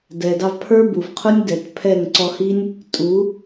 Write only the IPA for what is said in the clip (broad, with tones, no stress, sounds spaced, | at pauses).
d ɛ˨ d ɑ˧ v pʰ ə˞˦ b u˨ v qʰ ʊ˦ nʲ d ɛ˨ t pʰ ɛ˦˨ ŋ ǀ ɔ˧ h i˦ nʲ | tʼ u˨˦